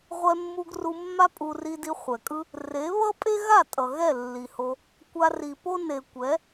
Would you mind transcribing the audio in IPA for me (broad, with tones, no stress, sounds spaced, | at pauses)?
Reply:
ʁʷ ɛ˧ mː u˧ ɡ r u˧ mː a˦ pʼ u˧ r i˧ d i˧ χʷ ɛ˨ kʼ ɯ˦ | r e˨˦ β ʌ˦ pʼ e˦ ɣ a˦˨ tʼ ʌ˨ ɣ ɛ˦˨ lː i˨ h o˧ | kʷ a˧ r i˨ p o˦ n e˨ kʷ ɛ˨˦